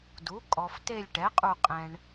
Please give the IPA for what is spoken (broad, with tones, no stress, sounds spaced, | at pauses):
d u˩˥ kʼ ɔ˨ f t e˦˨ lʲ ʈ ɛ˩˥ qʼ u˦˨ qʼ ɛ̃˨ ɳ